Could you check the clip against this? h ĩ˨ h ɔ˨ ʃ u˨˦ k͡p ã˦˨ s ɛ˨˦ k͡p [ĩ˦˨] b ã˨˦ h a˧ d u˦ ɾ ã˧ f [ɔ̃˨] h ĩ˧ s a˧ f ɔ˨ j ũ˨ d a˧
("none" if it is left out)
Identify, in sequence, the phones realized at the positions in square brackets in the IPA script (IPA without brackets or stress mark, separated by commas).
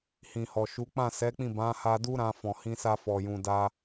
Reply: ĩ˦˨, ɔ̃˨